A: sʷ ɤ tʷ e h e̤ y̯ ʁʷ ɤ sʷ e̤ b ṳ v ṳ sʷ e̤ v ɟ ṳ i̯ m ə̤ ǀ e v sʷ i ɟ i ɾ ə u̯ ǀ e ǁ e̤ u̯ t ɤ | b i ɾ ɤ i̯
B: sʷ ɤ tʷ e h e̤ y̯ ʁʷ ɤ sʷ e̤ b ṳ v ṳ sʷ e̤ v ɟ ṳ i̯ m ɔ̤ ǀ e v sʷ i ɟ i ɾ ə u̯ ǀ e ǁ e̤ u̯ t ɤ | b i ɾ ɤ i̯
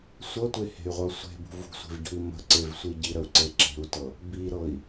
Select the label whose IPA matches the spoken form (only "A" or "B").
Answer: A